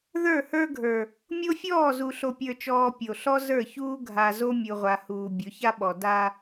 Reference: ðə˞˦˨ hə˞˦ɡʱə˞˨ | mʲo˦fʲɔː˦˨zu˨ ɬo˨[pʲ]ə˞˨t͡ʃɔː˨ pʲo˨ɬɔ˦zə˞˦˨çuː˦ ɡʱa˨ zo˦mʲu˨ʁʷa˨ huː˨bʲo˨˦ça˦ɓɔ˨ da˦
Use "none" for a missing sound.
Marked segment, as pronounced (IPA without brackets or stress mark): pʲ